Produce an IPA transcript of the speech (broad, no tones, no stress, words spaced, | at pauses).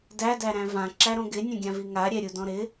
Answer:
dæ dæɾæ̃vã ǁæɾõɡɪ nʲõɡʲãviŋa ɾʲɛɾʲudɔ̃ɾɪ